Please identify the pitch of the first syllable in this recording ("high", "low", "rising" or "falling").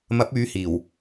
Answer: rising